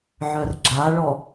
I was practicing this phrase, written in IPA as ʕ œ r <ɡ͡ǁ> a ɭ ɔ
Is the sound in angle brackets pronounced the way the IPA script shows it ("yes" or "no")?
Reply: yes